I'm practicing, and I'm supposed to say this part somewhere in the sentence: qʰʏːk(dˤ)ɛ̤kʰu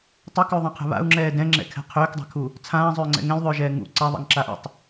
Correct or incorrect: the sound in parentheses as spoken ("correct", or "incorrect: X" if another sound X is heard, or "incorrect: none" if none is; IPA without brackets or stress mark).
correct